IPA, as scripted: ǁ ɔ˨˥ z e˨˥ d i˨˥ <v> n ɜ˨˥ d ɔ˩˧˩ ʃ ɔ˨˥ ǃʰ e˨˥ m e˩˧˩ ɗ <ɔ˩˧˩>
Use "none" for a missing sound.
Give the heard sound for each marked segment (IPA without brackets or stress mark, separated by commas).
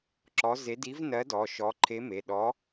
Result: v, ɔ˨˥